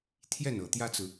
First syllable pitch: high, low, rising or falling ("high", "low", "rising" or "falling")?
falling